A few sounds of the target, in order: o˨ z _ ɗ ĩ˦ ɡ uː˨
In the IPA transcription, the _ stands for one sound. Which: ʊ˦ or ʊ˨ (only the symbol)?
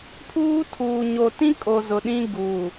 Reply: ʊ˨